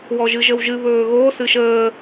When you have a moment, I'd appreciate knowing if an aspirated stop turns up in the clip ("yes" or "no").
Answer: no